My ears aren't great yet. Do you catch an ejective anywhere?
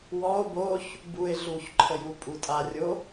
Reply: yes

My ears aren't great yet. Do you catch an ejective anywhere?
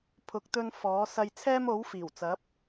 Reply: no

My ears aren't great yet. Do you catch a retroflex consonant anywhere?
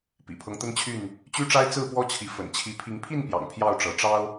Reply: yes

